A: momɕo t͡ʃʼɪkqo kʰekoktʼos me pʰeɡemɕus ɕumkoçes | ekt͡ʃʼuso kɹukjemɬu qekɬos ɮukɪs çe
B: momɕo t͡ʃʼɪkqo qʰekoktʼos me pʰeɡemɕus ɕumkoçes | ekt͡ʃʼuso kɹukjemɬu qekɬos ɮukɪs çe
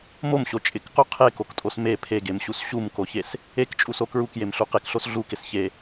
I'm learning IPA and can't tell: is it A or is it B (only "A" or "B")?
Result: B